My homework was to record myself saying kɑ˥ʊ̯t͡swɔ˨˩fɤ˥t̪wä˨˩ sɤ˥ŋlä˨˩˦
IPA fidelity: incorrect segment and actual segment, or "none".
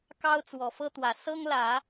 none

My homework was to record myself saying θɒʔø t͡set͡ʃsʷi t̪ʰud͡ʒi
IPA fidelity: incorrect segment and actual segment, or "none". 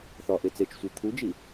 ø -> e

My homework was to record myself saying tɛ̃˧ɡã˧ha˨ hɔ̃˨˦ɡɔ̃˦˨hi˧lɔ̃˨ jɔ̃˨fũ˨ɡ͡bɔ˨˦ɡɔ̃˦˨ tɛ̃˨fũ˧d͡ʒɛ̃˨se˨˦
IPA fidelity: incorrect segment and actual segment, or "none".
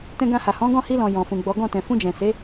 none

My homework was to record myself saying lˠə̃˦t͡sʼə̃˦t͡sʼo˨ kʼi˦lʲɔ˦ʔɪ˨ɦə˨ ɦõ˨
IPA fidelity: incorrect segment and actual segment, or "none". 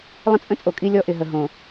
none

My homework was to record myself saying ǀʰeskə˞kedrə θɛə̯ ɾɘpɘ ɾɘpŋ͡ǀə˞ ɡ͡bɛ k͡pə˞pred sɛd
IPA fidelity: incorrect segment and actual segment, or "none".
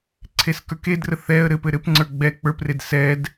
none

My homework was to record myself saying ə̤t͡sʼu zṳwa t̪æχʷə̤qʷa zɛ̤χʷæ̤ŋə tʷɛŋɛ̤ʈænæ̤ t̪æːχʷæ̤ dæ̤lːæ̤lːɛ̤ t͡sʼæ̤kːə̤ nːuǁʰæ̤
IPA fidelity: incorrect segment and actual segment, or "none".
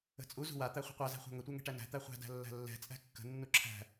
æː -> æ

